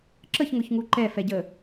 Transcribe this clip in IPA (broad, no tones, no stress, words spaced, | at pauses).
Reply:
ǁəçŋʊçŋu ǃɛfɛɟə